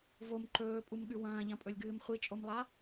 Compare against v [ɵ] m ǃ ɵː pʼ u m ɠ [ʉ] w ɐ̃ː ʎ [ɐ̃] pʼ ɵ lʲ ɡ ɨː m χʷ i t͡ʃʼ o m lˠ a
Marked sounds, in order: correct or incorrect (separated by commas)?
incorrect, correct, correct